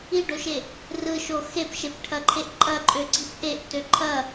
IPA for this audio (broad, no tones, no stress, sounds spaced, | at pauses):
i ɖ o ʃ e | r ɯ ʃ o x e p ʃ e p ʈʰ ɐ ǃʰ e ʔ ǃʼ ɐ ǃʼ ø ɡ͡ǀ i p ʔ e ʔ t ø ǃʰ ɐ